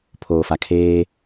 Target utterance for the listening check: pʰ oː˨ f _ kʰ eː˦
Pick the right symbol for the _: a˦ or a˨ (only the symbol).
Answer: a˨